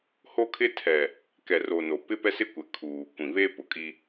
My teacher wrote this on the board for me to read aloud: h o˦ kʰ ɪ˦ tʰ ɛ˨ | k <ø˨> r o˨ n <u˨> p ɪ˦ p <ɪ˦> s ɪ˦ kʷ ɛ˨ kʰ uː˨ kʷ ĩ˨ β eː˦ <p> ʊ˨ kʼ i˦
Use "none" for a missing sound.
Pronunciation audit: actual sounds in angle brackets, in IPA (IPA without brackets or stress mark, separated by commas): ɛ˨, o˨, ɛ˦, p